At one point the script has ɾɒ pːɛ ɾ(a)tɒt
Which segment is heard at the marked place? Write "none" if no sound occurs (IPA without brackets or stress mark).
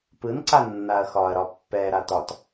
a